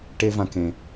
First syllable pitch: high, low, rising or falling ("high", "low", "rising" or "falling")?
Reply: high